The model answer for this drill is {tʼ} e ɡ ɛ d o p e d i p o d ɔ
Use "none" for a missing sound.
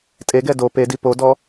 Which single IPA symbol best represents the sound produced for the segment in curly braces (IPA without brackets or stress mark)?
tʼ